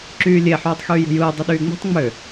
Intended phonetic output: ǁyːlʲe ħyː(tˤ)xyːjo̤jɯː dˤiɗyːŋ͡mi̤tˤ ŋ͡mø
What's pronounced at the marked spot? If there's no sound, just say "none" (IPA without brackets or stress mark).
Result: tˤ